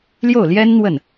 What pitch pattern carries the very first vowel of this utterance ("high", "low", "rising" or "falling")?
falling